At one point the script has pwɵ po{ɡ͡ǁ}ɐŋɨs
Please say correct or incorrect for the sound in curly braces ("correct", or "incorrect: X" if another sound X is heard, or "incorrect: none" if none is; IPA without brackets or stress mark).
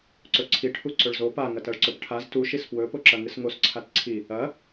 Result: incorrect: ǁ